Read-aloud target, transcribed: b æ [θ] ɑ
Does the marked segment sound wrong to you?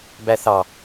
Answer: no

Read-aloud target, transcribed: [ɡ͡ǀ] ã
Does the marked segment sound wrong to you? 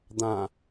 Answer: yes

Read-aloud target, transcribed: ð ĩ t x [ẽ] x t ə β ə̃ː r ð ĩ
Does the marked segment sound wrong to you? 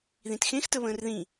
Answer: no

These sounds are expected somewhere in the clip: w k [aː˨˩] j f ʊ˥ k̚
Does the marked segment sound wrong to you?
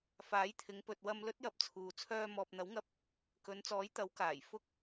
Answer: no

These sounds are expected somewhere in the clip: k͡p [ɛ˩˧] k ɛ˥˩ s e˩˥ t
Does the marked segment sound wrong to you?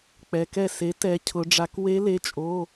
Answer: no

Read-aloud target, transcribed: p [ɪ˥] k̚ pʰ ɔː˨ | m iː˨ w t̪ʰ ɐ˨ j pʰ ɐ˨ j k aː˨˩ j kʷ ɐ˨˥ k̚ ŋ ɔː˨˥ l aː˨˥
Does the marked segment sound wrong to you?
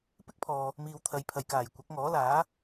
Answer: no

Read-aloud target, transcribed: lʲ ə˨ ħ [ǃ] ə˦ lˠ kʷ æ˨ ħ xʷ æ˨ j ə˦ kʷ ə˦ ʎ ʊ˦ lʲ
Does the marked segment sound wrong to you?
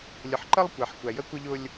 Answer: no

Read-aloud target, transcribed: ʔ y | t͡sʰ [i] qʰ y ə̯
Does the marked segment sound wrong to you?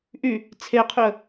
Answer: yes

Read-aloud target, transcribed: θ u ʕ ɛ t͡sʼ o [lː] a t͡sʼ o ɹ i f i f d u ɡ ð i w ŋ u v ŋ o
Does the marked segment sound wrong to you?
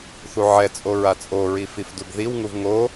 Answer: yes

